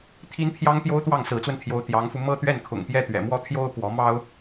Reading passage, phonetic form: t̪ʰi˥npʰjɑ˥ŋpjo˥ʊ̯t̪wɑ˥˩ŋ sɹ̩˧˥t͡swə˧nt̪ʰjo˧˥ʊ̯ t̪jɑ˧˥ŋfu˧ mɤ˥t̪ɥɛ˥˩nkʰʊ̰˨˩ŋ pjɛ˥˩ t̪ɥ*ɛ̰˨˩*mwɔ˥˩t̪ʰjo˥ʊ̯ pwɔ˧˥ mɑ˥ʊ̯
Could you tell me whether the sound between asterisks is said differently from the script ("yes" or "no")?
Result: no